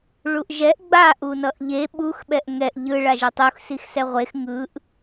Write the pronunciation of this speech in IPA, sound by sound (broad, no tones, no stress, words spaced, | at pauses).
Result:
ɭuʔʒɛʔ ɡ͡ba ʔunʌʔʎe ɓux ɓɛʔŋɛʔ ʎɯ ɭaʒetˤux sixsɛʁʷex ŋɯʔ